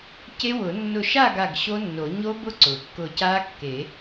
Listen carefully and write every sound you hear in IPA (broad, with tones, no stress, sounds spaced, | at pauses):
c e˦˥ w ʊ˨˩˦ nː ʊ˧˩ ʃ a˥˨ ɡ a˧˩ ɡ ɕ o˦˥ nː o˨˩˦ ɲ o˦˥ b ʊ˦˥ ǀ ʊ˩ kː ʊ˧˩ c a˦˥ kː e˨˩˦